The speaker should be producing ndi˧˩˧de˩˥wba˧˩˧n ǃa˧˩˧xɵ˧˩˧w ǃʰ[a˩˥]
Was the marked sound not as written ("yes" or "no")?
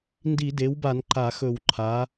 no